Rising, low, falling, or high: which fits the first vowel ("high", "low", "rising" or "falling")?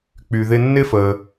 low